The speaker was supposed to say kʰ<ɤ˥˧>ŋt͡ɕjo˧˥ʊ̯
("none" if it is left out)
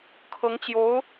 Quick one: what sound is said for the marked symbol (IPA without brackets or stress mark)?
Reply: ɤ˧˥